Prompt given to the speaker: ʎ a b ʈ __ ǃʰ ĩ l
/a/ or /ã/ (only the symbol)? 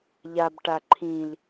a